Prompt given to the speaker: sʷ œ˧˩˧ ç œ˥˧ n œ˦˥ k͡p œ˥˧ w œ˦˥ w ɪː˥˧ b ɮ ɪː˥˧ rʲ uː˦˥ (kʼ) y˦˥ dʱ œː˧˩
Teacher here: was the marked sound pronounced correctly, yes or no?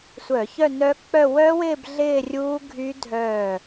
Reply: no